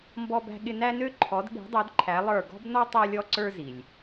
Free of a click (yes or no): no